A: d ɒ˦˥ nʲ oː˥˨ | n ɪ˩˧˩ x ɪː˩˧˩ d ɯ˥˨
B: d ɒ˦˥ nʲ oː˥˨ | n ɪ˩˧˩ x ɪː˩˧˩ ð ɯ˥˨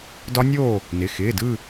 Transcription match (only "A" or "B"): A